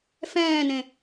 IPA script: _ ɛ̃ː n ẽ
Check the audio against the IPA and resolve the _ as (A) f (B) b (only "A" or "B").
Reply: A